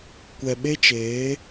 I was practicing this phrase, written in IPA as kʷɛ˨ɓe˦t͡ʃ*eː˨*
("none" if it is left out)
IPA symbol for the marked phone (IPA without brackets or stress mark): eː˨˦